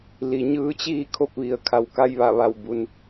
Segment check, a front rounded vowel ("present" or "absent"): absent